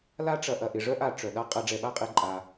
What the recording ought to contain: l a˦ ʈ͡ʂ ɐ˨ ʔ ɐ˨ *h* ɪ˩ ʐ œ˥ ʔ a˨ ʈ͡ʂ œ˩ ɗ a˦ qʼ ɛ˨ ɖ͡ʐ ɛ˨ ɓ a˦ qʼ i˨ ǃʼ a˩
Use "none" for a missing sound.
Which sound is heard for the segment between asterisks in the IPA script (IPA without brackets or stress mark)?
ʔ